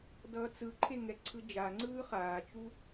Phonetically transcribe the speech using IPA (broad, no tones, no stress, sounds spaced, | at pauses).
d ʌː t͡s ɯ ǃʰ e ŋ ɛ ǀʰ ɯ d͡ʒ a ŋ͡ǀ ɯː χ aː t͡ʃ u